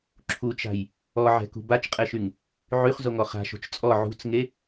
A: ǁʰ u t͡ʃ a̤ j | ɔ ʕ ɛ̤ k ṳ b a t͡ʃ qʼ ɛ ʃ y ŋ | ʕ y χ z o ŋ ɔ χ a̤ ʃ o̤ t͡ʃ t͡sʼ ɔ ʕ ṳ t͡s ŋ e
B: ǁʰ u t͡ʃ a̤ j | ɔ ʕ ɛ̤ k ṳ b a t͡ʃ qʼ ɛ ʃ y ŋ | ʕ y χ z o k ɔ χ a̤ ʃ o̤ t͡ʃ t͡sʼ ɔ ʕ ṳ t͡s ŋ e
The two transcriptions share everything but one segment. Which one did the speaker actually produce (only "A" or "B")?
A